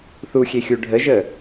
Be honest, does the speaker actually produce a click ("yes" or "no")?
no